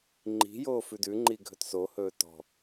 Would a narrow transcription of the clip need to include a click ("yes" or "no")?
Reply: yes